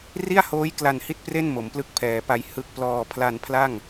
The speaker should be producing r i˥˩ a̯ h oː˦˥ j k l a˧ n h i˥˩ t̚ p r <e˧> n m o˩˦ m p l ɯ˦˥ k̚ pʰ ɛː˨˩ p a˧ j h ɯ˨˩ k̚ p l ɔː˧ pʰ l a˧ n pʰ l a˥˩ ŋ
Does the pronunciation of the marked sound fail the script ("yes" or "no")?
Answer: yes